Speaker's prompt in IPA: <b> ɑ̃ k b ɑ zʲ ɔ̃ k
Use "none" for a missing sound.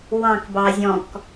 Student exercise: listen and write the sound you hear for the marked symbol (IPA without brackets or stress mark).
w